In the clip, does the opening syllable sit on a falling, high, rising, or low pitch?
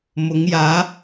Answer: rising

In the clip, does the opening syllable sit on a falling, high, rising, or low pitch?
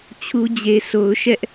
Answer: high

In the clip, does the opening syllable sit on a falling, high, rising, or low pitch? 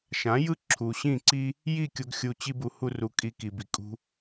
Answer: rising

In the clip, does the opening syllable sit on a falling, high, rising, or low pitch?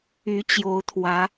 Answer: rising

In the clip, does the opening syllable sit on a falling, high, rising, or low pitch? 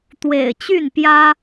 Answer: low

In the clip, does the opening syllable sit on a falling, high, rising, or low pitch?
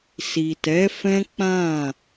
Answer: low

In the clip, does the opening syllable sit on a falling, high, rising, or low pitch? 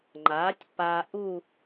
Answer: rising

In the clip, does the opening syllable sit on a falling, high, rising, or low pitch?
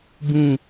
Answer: falling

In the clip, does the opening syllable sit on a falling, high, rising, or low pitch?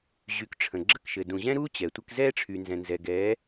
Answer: rising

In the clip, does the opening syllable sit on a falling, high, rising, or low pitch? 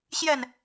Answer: falling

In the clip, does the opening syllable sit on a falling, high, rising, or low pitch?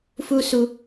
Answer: high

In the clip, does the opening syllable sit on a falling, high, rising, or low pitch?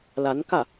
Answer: rising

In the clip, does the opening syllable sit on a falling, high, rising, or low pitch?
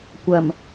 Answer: low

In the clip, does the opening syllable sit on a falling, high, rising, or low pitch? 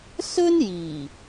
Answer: high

